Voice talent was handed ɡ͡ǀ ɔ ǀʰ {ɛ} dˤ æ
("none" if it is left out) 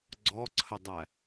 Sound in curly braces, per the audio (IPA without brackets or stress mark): ə